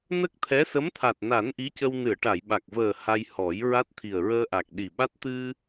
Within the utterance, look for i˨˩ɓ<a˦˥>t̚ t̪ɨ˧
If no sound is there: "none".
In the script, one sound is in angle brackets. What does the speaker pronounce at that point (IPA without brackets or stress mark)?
a˦˥